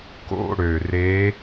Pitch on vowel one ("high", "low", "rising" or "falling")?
falling